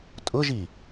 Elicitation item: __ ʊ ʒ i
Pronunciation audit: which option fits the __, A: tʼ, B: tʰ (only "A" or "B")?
A